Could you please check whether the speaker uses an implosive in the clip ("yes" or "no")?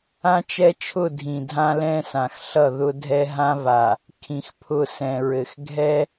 no